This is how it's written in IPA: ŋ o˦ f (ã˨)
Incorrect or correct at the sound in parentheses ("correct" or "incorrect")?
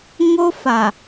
incorrect